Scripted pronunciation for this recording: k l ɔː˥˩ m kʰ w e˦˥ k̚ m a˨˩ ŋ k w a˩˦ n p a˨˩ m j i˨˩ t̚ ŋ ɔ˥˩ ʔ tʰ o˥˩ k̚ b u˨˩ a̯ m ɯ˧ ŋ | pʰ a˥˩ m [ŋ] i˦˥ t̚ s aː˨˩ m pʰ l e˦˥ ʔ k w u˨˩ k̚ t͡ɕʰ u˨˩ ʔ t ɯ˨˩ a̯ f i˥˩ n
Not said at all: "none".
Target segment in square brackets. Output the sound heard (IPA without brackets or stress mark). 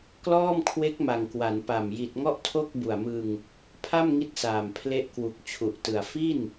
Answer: ŋ